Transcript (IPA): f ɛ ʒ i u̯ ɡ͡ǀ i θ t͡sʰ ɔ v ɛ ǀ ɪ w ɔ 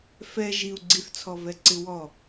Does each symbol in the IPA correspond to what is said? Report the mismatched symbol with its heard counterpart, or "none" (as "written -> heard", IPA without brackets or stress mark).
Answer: none